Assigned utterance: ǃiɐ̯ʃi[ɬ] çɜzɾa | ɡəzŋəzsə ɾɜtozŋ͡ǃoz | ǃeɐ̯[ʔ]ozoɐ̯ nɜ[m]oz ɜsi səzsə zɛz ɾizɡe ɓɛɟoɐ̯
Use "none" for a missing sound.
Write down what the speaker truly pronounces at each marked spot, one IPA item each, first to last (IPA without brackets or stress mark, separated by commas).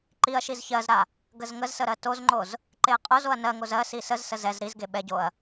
z, qʼ, ŋ